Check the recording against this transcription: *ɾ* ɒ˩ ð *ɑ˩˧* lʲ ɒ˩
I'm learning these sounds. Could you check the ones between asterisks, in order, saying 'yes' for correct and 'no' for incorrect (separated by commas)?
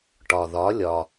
no, no